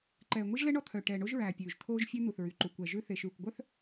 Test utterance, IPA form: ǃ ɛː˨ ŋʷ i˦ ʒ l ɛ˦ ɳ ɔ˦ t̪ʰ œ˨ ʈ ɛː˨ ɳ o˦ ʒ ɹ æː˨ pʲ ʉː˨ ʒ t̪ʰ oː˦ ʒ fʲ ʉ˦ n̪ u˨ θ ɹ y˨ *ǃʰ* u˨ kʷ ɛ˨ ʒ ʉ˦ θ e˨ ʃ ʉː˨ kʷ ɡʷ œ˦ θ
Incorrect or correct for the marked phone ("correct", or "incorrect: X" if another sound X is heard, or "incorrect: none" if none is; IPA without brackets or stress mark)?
incorrect: ǃ